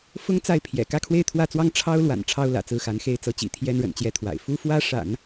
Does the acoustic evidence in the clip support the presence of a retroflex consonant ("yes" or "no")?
yes